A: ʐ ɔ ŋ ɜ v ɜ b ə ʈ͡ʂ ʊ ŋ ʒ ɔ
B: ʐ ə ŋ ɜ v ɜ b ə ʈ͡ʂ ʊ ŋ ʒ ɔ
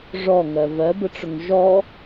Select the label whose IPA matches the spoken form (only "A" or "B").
A